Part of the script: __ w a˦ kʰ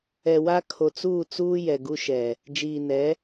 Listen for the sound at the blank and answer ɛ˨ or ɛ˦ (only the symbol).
ɛ˨